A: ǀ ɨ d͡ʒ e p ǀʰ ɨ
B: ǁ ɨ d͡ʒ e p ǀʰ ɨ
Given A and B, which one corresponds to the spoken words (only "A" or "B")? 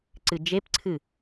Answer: A